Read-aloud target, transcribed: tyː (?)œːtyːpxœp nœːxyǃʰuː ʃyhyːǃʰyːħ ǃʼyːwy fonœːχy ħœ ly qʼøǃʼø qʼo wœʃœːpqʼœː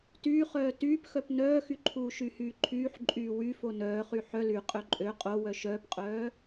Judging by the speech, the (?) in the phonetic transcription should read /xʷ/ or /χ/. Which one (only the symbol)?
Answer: χ